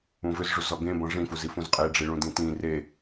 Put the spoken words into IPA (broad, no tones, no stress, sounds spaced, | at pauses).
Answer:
ũ v ʏ z ʐ u z ɔ ɡ ẽ b ɔ̃ ʐ ĩ f u z i f ũ z qʼ e ɖ͡ʐ i ɭ ũ d ĩ t ĩ r e